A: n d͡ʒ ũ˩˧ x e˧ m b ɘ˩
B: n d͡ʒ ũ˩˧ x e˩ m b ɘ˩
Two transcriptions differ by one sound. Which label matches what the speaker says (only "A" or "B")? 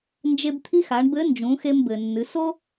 A